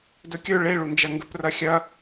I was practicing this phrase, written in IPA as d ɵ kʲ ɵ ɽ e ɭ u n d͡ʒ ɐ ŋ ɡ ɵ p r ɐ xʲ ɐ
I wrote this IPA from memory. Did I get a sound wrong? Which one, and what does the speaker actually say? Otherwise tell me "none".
ɽ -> ɭ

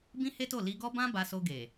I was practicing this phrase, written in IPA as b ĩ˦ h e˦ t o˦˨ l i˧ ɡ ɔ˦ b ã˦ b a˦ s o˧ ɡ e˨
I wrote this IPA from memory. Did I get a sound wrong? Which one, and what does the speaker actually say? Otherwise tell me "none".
a˦ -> a˧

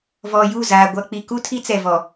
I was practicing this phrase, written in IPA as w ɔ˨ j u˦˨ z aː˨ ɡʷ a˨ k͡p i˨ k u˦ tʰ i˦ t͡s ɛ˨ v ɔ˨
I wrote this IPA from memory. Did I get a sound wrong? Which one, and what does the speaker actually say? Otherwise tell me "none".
w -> v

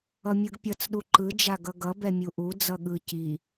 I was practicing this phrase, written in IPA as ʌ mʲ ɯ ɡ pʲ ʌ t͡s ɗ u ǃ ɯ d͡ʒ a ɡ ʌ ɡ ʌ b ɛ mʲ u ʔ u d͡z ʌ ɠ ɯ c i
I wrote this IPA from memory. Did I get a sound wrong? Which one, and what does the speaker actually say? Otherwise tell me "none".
none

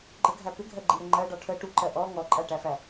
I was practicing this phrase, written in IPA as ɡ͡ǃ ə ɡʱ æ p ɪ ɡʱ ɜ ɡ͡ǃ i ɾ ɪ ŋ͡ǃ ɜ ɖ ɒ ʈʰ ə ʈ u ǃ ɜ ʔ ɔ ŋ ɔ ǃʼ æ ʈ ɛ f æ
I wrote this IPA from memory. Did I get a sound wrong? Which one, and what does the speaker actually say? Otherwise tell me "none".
ɛ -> æ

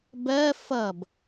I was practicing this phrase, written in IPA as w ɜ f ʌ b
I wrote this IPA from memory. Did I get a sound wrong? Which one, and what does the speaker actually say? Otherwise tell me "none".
w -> b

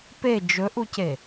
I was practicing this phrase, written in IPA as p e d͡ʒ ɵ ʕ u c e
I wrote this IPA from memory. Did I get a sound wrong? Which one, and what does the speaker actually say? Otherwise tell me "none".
ʕ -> ʔ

